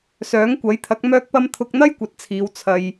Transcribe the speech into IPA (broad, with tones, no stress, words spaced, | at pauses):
sœː˨˥ŋkʷɐ˨˥jt̪ʰɐ˨˥k̚ mœː˧k̚pɐ˧m t̪ʰʊ˧k̚n̪ɐ˥jkʷɐ˨t̚t͡sʰiː˨w t͡sʰɐ˨j